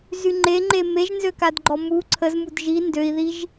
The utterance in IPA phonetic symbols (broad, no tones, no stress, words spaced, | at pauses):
zyŋ͡ǃeŋ͡ǃe meʒnzøkadɡ͡ǃɔ mu ǀʰəz mudʒi ndøi̯ðiʒ